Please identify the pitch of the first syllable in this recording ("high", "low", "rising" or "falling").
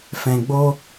low